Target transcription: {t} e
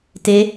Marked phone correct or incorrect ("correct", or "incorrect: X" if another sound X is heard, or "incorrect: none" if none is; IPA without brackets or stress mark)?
correct